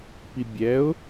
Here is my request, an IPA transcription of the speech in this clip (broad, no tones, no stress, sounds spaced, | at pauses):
p i bʲ ɛ ʊ̯